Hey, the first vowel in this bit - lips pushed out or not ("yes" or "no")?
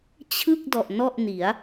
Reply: no